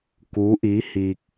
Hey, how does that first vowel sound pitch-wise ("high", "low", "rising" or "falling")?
rising